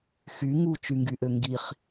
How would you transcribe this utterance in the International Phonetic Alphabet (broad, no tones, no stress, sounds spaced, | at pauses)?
x y ŋ u t͡ʃ y ŋ ɡ y ʔ ø ŋ ɡ i χ